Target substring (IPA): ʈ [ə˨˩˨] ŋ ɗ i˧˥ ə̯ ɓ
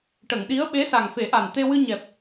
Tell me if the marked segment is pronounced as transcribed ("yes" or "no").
yes